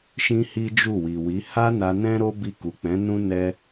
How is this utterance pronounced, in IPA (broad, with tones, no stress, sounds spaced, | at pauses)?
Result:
ʃ ĩ˦ h i˦ d͡ʒ u˦˨ w i˨ w i˨˦ h a˦ n a˧ n ɛ̃˦ ɾ o˦ b i˧ k u˨ k͡p ɛ̃˨˦ n ũ˦ n ɛ˦